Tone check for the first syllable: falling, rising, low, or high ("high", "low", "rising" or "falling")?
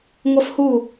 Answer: high